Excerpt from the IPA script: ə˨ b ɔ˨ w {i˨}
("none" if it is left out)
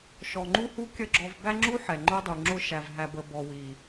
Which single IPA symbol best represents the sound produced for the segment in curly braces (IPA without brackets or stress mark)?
i˨